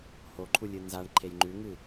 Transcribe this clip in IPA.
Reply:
h o ǃʰ u lʲ ɨ n z a ɳ ǃʰ e j ŋ͡ǃ ʉ ŋ ɨ

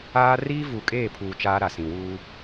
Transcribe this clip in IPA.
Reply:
aː˦ r iː˦ v uː˨ kʼ eː˦˨ pʰ uː˨ t͡ʃ aː˦ ɾ a˨ s ĩ˨ w uː˦

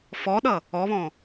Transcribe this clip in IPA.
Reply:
f ɔ ɗ ʌ | ɔ β ɔ̃

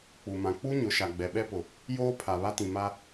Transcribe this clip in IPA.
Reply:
k͡p u˨ m ã˨ k͡p u˦ ɲ ʊ˨˦ ʃ a˨ ɡ͡b ɛ˨ ɓ ɛ˦ p ʊ˨ | j oː˦ pʰ a˨ β a˦ t ĩ˨ m a˦

